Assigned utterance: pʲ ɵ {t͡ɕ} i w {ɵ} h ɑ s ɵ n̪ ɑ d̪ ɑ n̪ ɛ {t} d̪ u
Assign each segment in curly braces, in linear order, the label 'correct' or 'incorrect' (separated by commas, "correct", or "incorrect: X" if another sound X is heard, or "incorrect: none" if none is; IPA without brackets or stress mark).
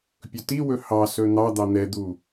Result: incorrect: t, correct, incorrect: none